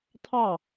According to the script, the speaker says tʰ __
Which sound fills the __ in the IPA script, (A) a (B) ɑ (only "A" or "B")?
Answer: B